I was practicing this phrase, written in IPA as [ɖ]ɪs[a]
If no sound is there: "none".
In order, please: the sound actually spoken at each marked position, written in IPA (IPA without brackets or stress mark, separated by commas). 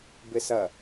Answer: b, ɐ